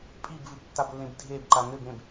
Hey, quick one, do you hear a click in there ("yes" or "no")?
yes